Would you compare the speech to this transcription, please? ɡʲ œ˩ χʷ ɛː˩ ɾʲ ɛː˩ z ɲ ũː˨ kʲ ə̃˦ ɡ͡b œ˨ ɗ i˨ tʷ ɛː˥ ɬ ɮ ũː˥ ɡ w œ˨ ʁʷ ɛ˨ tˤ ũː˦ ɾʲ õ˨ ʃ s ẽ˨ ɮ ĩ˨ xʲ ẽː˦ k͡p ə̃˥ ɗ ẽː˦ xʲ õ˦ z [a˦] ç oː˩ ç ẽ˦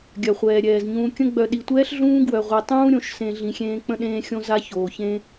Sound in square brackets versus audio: correct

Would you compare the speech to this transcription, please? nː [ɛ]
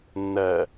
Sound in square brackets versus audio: incorrect: ɜ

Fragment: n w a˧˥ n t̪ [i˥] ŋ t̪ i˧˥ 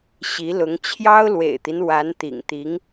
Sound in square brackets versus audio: incorrect: ḭ˨˩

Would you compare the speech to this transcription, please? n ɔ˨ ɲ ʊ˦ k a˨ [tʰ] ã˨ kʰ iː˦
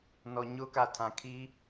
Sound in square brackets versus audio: correct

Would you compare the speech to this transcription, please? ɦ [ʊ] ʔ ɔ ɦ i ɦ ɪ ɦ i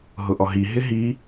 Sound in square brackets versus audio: correct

